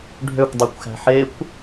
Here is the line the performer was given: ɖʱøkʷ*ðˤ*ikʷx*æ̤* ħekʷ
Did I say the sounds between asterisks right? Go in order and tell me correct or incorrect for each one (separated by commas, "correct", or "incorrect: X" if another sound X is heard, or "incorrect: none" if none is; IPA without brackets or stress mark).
incorrect: dˤ, correct